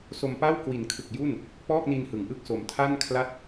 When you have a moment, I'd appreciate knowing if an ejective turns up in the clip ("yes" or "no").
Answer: no